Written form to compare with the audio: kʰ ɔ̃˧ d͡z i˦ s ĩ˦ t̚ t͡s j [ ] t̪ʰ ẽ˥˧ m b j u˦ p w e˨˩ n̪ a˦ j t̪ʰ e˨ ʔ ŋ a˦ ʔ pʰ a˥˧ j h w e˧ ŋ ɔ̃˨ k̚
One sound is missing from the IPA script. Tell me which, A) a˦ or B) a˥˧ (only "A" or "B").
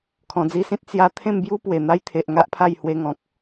A